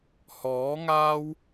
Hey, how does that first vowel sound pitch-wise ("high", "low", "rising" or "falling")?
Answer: rising